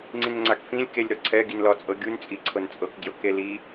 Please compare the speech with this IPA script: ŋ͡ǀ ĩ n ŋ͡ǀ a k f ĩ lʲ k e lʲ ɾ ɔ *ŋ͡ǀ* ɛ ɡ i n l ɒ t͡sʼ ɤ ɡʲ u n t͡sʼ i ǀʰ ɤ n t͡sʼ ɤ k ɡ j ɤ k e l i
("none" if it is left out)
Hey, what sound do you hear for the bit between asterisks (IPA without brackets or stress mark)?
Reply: ǀʰ